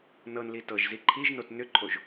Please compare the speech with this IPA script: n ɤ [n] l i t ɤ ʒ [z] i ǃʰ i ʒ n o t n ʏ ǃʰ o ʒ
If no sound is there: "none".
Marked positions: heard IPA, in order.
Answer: n, z

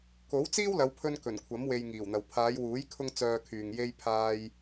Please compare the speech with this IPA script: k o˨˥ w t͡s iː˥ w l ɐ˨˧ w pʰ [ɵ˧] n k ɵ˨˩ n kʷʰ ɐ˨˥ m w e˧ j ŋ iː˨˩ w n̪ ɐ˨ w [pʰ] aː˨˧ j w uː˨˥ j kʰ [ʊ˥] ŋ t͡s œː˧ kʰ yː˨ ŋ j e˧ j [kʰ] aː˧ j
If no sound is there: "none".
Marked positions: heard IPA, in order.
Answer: ɵ˧, pʰ, ʊ˥, pʰ

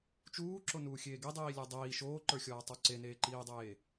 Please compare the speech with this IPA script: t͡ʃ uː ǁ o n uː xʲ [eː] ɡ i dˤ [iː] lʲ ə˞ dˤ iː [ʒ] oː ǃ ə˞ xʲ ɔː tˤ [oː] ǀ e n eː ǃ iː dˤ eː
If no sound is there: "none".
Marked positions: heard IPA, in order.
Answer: eː, iː, ʃ, o

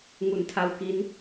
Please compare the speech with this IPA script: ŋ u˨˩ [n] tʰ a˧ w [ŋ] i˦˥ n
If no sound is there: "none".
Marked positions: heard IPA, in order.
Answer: n, k

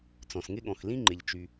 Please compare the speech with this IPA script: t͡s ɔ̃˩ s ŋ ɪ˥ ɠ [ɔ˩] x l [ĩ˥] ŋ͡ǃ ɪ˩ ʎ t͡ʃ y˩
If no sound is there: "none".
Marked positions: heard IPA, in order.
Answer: ɔ̃˩, ĩ˥

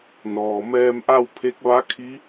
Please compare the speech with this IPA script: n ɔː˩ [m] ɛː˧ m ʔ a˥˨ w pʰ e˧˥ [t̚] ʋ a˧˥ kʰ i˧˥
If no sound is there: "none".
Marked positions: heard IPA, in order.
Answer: m, k̚

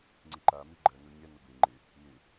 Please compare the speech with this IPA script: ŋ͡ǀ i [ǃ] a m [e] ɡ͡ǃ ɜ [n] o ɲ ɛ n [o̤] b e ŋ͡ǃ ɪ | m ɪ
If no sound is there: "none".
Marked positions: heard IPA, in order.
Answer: ǃ, i, n, o

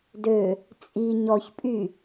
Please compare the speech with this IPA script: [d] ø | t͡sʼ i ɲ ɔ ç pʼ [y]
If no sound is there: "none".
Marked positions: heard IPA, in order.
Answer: d, y

